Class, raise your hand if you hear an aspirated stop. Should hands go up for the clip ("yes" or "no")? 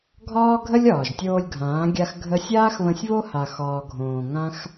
no